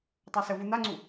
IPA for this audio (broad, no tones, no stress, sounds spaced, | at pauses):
tˤ a s ə v u n̪ a ŋ͡ǀ u